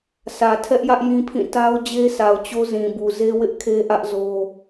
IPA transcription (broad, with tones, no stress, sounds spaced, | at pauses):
sʰ ä˨ tʰ ɛ˦ ʔ j ä˦ ʔ j ĩ˦ pʰ ĩ˦˨ t a˦ ʊ̯ d͡ʑ e˦ sʰ a˨ ʊ̯ t͡ɕ o˦ z ĩ˨ b u˨ z e˦ w ɪ˦ ʔ kʰ e˦ ʔ ä˦ ʔ z o˦